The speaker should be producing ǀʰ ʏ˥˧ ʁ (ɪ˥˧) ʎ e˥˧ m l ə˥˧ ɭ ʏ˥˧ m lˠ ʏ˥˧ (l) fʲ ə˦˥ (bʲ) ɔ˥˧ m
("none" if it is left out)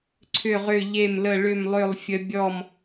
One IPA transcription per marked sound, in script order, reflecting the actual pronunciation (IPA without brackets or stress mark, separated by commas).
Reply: ʏ˥˧, lˠ, bʲ